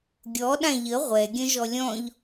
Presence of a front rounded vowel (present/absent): present